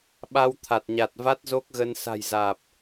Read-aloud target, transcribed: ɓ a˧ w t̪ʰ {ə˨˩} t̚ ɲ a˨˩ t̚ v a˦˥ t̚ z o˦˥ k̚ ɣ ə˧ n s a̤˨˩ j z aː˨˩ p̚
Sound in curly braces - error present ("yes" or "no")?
yes